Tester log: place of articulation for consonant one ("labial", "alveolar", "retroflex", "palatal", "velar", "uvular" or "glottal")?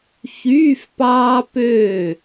palatal